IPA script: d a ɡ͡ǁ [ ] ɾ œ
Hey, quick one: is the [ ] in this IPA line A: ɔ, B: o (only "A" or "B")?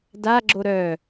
B